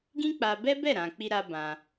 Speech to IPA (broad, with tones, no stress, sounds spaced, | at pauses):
ɡ ĩ˦ k͡p a˧ b ɛ˦ b ɛ˦˨ ɾ ã˨ k͡p i˧ ɾ a˧ b ã˧